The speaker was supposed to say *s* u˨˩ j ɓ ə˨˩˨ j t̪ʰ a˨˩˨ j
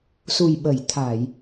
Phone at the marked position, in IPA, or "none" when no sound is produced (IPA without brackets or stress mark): s